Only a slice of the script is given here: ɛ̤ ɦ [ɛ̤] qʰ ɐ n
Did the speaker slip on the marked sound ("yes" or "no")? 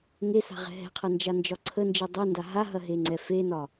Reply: no